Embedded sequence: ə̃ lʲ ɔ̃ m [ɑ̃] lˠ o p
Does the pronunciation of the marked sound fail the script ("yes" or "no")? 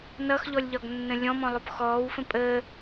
yes